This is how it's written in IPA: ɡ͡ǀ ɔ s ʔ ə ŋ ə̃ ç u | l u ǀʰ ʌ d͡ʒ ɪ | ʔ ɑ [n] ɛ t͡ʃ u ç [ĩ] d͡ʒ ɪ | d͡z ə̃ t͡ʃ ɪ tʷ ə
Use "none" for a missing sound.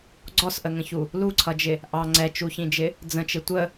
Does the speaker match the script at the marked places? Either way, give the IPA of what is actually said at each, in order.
ŋ͡ǀ, ĩ

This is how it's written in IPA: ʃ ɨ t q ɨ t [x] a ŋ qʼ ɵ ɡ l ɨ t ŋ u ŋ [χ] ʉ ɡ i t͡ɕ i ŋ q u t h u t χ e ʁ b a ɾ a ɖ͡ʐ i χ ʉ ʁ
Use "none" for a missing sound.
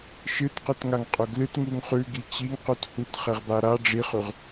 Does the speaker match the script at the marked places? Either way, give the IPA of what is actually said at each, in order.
ŋ, χ

